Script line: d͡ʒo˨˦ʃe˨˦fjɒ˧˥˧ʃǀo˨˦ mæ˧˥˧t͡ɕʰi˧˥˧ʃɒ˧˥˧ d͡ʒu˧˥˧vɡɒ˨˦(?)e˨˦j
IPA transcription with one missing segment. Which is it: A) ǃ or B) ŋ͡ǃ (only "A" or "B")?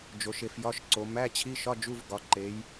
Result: A